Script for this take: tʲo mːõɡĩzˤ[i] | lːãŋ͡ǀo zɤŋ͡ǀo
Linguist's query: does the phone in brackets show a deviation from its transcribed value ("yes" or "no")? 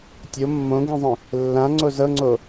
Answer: yes